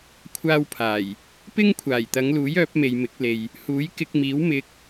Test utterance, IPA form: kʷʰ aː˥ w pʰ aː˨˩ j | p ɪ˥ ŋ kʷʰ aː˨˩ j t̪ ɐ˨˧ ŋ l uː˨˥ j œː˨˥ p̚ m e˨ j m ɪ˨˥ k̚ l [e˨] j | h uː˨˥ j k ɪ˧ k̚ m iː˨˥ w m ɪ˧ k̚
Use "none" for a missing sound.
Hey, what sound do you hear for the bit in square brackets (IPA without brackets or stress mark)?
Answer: e˨